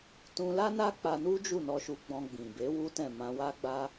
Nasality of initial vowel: nasal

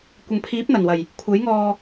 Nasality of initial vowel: oral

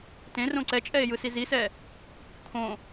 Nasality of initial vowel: nasal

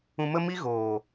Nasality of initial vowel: nasal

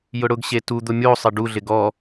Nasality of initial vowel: oral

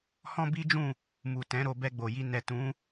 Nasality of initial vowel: nasal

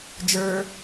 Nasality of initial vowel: oral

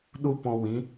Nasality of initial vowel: oral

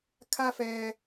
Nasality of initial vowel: oral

